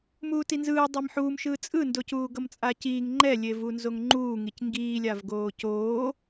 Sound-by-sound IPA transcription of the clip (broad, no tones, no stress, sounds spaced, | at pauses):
m uː t i n z ɯː dˤ i m ħ uː m ʃ ɯː t͡sʼ ɯ n d o c uː ɡ ʌ m t͡sʼ a c iː ŋ ŋ͡ǃ ɛ lʲ e v u n z o ŋ ŋ͡ǃ uː ŋ i c ŋ ɡ iː lʲ a v ɡ oː c oː